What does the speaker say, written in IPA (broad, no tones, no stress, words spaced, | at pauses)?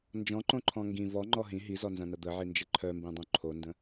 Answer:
nd͡ʒɔ̃ǃõǃʰɔ̃ ŋɡĩ vɔŋ͡ǃɔ ɦĩ ɦizɔnzɐ̃nɐ d̪əʕind͡ʒə ǃʰœmbĩdˤõ ǃʰondə̃